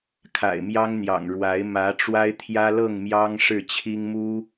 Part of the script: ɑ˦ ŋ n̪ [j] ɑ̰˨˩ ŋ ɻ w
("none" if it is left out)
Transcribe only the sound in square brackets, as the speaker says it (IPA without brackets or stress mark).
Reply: j